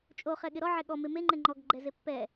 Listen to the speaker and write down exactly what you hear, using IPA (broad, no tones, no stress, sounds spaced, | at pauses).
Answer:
t͡ʃʼ o χ ɛ ɠ ɪ ɾ ɔ ʕ ɛ ɠ ɔ m e m e ŋ͡ǃ ɛ ŋ͡ǃ ɔ ɡ ɡ͡ǃ ɛ z e pː ɛ